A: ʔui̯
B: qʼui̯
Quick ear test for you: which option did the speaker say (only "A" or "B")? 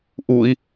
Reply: A